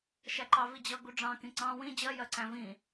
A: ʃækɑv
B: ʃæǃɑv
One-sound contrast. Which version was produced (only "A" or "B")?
B